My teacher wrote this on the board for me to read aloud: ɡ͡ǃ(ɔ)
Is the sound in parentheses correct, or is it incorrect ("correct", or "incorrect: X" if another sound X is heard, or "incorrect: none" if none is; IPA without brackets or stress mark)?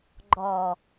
correct